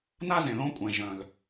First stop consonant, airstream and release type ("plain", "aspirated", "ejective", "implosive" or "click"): ejective